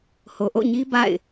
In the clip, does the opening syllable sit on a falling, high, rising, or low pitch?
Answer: low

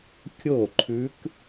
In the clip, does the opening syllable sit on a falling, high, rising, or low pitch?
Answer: falling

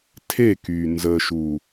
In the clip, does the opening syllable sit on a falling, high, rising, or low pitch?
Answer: falling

